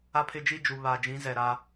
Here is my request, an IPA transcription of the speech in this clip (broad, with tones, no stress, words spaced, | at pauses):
a˦pʰɪ˦d͡ʒi˦d͡ʒu˨ βa˨d͡ʒĩ˨˦zɛ˨ ɾa˦